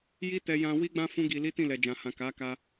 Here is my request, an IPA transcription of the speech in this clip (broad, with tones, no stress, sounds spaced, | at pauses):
j i˦ t ɛ˧ j ã˦ w i˦ ɡ͡b ã˦ f ũ˦ ɡ i˧ l i˦ t ĩ˦˨ l ɛ˨ d͡ʒ ã˨ h ã˨ k a˨˦ k a˧